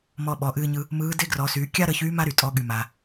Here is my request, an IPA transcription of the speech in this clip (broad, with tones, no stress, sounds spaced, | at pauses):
m ɔ˧ ɓ ɔ˩˧ ʔ ɨː˧ ɲ ɯ˧ | m ɯː˧˥ d e˥ ɡ r ɔ˩˧ s yː˩˧ kʲ a˥ ɾ ə˧ ç yː˧˥ m a˥ ɾ y˩ tʼ ɔ˩˧ ɠ y˩ m a˩